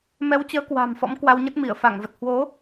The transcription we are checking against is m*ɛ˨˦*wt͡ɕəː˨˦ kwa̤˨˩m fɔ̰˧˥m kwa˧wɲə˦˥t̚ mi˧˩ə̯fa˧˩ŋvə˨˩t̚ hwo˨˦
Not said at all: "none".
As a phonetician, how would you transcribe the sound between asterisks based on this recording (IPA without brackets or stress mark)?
ɛ˨˦